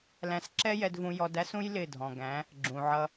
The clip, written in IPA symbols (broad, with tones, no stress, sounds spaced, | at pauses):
l æ̃˧ s ǁ ɛ˦ j ɛ˧ d v ũ˧ j ɔ˧ d æ˦ s ũ˦ j l ɪ˦˨ dʱ ɔ̃˨ ɡ æ̃˨˦ | ɡ͡ǁ ũ˨ ʕ ʌ˧